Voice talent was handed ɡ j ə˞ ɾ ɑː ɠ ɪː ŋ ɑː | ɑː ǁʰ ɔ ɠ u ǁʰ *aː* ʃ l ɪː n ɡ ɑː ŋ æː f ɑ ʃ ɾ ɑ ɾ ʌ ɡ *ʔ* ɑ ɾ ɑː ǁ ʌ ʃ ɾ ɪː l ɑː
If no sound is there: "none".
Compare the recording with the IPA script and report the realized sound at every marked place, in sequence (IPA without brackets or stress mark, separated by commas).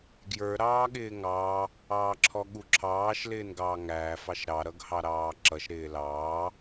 ɑː, h